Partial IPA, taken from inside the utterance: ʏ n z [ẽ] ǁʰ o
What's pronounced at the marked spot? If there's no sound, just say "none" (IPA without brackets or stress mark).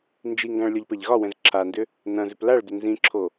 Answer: ĩ